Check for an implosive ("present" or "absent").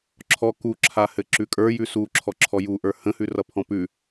absent